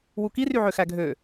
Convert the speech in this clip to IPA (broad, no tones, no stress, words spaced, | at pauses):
wukiryʕø xæɡʱø